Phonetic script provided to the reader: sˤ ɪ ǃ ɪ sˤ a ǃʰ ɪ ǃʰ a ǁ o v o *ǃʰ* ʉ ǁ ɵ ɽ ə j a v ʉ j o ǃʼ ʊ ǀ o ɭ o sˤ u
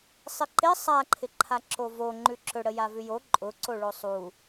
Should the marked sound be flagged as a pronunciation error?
yes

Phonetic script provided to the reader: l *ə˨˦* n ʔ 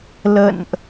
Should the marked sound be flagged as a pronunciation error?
yes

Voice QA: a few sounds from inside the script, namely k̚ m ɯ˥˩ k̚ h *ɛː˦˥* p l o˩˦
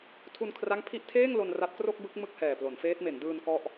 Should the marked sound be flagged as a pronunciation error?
yes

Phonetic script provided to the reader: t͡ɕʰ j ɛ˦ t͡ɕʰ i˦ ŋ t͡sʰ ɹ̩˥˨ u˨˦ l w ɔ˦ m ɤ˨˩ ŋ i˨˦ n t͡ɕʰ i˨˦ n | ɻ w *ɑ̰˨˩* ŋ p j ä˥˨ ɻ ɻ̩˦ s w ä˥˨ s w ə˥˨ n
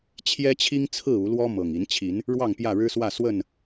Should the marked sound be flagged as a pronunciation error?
yes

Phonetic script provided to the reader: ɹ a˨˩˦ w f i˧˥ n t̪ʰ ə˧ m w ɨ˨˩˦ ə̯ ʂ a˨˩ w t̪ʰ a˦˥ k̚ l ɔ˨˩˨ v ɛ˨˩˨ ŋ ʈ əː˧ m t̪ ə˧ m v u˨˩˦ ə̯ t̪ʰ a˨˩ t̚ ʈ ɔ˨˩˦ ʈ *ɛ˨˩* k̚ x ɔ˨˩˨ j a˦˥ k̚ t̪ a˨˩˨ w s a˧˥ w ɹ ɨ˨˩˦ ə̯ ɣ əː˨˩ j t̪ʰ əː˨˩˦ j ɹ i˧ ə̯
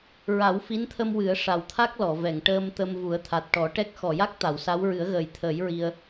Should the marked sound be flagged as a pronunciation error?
yes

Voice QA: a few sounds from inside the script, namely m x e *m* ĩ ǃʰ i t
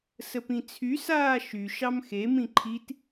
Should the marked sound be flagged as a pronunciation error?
no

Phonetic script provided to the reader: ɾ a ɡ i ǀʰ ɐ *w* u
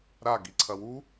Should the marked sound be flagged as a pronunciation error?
no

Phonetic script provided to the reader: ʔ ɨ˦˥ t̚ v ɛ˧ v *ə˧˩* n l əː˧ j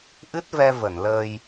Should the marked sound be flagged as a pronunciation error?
no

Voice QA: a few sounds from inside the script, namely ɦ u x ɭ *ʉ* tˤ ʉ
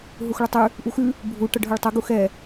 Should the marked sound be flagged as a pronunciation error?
yes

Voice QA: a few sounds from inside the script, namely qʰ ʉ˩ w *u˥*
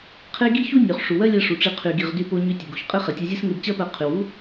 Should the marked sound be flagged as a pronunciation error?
no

